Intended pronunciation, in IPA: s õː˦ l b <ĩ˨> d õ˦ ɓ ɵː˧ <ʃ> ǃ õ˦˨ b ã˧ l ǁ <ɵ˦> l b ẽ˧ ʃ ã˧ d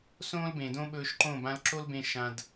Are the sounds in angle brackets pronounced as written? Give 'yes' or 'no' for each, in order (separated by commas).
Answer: no, yes, no